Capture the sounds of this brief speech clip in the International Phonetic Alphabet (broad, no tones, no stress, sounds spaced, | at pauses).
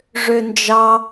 ʐ ø n d͡ʒ ɑ